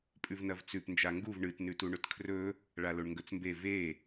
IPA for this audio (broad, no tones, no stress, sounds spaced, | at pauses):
pʼ ʉ v n ɐ v t͡s ʉ p n d͡ʒ a ŋ ɡ u v ɳ ɨ t n ʉ t u ɳ ɵ t kʰ r ɵ | ɭ a l o ɳ ŋ ɡ ɵ t͡s m b e v e